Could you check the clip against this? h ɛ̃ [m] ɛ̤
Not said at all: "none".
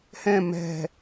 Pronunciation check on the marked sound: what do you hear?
m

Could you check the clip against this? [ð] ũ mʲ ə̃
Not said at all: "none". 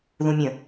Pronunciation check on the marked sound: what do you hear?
ð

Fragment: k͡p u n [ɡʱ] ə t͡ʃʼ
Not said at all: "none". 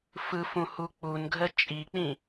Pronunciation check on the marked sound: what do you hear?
ɡʱ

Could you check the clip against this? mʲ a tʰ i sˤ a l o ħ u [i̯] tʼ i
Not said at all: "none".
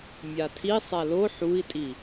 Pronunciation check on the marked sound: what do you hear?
i̯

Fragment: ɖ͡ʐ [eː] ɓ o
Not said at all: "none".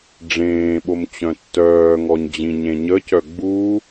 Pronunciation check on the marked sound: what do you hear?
ẽː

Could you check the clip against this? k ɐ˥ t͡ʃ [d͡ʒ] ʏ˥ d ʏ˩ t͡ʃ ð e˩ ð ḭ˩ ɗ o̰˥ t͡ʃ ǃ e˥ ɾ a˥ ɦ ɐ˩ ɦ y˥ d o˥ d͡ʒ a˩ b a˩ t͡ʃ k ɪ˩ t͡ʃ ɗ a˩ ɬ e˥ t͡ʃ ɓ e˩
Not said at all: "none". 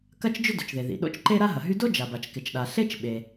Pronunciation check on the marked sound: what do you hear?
d͡ʒ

